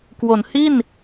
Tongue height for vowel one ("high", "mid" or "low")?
mid